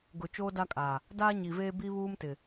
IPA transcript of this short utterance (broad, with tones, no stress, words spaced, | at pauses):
ɡʊ˨ t͡ʃoː˦da˦kʼaː˨ | daː˦ɲi˨veː˦ bi˦βuː˦mtɪ˨